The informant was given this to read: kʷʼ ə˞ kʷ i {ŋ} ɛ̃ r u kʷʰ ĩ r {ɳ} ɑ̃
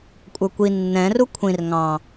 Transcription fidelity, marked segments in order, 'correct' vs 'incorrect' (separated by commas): incorrect, incorrect